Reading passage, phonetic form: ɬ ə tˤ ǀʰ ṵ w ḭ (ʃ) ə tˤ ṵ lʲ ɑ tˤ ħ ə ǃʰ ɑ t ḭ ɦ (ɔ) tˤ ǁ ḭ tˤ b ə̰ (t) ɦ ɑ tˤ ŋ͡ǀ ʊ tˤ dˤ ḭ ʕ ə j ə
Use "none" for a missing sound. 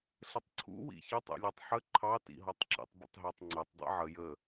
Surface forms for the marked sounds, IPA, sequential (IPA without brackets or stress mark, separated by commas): ç, ɔ, tˤ